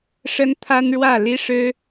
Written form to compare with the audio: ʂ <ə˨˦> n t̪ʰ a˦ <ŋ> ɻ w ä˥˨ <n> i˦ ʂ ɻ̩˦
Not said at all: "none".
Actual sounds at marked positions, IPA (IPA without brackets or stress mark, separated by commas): ə˦, n, l